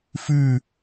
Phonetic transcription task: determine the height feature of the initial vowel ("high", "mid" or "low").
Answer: high